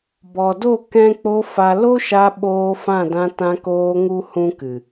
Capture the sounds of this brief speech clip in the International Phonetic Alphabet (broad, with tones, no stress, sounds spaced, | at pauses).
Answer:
b ɔ˨ d o˦˨ k ɛ̃˧ k͡p o˧ f a˧ l o˦ ʃ a˧ ɓ oː˧ f ã˦˨ d ã˧ t ã˧ k oː˧ ŋ u˦ h ũ˦ k ɨ˨